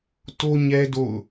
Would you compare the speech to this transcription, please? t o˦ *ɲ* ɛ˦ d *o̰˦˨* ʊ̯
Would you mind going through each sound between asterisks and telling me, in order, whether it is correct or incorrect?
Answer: correct, correct

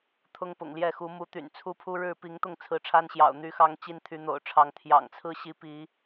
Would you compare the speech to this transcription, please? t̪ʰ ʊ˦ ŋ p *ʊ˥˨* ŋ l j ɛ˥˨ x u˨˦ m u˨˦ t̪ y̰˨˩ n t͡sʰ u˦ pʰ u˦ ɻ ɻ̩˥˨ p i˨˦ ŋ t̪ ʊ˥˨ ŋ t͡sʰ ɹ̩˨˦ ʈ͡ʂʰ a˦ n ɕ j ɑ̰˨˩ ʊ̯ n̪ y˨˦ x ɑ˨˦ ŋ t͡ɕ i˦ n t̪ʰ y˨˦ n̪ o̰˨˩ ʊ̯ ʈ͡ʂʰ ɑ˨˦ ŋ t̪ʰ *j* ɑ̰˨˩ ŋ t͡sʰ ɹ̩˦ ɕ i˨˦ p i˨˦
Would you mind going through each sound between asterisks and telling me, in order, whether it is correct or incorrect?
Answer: incorrect, correct

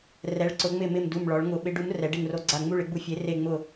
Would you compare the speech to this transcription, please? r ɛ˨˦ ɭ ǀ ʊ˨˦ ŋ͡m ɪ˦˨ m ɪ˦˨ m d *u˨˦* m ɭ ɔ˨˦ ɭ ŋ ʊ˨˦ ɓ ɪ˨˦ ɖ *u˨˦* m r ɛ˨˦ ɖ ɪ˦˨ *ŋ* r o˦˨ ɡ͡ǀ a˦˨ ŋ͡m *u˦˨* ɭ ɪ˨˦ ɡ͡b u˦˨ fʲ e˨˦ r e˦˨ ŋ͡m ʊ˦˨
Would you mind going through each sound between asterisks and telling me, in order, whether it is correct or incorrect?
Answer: incorrect, correct, correct, correct

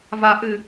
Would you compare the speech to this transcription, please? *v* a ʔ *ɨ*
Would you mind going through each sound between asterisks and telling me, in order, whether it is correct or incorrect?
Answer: correct, correct

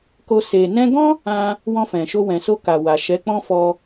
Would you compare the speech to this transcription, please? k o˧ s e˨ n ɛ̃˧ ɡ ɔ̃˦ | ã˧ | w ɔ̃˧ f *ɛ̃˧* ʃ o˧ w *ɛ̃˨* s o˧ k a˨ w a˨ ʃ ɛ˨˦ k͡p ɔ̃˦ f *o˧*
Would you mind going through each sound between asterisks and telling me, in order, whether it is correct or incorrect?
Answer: incorrect, correct, incorrect

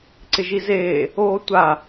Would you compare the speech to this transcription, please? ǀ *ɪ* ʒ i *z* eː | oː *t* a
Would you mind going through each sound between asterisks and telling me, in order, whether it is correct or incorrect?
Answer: correct, correct, incorrect

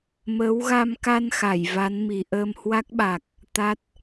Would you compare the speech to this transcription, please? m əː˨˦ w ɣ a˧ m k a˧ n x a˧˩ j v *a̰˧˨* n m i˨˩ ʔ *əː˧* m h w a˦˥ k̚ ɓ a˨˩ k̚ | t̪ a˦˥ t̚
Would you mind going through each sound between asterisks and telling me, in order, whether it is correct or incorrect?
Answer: incorrect, correct

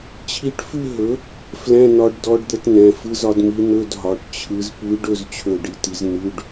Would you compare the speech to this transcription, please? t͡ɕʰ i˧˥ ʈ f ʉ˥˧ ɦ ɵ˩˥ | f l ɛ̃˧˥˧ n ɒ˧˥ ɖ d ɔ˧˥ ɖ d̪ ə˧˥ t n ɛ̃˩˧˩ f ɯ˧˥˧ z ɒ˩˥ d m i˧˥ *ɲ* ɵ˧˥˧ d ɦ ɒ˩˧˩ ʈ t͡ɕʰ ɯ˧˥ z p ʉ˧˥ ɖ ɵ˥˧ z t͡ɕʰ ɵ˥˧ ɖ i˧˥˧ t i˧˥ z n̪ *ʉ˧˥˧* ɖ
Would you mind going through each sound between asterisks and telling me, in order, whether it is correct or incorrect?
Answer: incorrect, correct

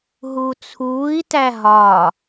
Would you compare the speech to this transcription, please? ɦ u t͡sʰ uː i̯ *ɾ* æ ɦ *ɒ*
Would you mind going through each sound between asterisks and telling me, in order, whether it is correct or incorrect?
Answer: incorrect, correct

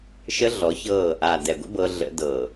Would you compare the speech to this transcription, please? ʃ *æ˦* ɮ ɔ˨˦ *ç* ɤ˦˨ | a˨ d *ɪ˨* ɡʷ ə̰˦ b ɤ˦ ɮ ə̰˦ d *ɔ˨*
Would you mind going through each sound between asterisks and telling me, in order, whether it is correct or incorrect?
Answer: incorrect, correct, incorrect, incorrect

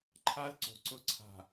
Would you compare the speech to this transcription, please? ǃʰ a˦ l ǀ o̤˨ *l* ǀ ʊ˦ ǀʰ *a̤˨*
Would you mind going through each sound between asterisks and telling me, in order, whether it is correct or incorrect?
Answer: incorrect, correct

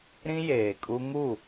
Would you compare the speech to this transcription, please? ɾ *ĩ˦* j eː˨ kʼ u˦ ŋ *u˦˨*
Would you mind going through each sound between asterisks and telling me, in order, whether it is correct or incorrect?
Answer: correct, correct

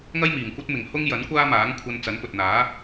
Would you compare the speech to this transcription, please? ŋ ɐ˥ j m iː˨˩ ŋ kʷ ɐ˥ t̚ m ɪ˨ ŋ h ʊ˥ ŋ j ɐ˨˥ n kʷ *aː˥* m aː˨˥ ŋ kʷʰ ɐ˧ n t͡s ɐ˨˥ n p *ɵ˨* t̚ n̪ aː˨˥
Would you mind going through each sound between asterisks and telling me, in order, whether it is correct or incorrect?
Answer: correct, correct

